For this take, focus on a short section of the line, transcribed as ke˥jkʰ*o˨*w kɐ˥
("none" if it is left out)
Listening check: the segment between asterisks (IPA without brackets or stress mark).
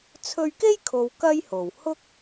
o˨